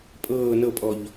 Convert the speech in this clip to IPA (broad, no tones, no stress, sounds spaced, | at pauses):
pʼ ɤː n ɤ pʼ ɔ ʎ